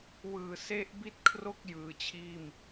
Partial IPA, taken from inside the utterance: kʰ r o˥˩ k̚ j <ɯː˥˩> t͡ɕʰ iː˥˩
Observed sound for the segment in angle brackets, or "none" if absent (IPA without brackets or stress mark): ɯː˨˩